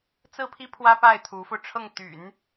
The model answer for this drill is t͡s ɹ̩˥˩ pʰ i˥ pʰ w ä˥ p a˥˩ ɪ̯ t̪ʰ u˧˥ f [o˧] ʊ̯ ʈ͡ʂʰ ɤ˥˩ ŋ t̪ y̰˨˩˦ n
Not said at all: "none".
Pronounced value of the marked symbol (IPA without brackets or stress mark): o˧